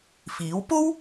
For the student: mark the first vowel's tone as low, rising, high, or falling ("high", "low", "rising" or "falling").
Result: rising